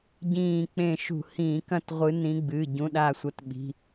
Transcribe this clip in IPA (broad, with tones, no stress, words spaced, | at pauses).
ɟĩː˧˩k͡pẽ˧˩ ʃṳ˧˩˧hĩː˧˩˧kɐ̃˥˧tʁʷɨ˨˦ nĩ˨˦ɡ͡bɨ˩˧˩ ɟũ˩˧˩ɗa˧˩sʷɐ˨˦tɓi̤˩˧˩